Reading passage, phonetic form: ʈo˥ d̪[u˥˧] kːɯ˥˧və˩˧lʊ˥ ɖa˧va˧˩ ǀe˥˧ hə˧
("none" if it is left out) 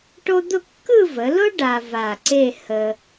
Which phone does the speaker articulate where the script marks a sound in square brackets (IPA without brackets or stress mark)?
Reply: ʊ˥˧